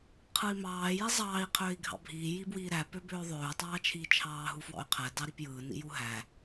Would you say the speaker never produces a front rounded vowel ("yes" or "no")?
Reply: no